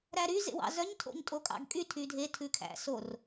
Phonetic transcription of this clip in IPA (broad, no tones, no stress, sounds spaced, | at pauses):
ɾ æ ɾ y z ḛ w ɑ̰ z œ ɲ tʰ o̰ ɲ tʼ o kʼ ɑ̰ ɡ kʼ y tʰ y dʱ e tʰ ʉ kʰ æ̰ s o r